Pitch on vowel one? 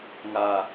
high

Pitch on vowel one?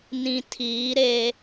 low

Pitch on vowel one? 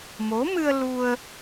rising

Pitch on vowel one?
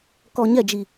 low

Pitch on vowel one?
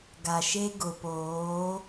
low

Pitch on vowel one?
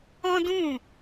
high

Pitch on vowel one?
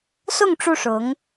falling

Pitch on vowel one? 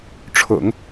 low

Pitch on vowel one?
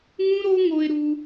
high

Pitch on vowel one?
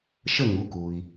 falling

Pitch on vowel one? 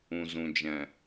low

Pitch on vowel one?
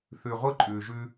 low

